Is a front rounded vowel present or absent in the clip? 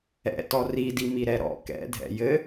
absent